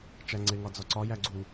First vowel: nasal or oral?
oral